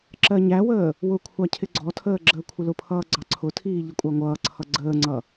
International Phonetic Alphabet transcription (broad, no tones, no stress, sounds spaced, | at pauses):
ǁ ɜ ɲ æ w əː | w ʊ kʷʰ ɑ cʰ ɪ ɡ͡ǀ ɔ tʰ əː ɡ͡ǁ əː kʷʰ ɪ l ʊ pʰ ʌː ɡ͡ǀ ɑ ǀʰ ʊ tʰ iː ʎ ɪ kʷʼ ɑ ŋʷ ʌː ǀʰ ʌ ɡ͡ǀ əː ŋ͡ǀ ʌ